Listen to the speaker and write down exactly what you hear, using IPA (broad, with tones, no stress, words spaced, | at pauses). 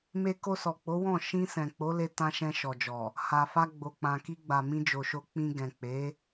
me˧ko˧sɔ˨k͡po˨˦ wɔ̃˦˨ ʃĩ˧ sɛ̃˨k͡po˨˦le˧ tã˧ ʃɛ̃˧ʃɔ˨d͡ʒɔ˨ | ha˨fa˧ ɡ͡bo˨k͡pã˨ki˧ɡ͡ba˨ mĩ˧d͡ʒo˨ʃo˧ k͡pĩ˧ ɡɛ̃˨k͡pe˨˦